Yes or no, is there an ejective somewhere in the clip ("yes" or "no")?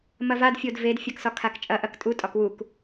yes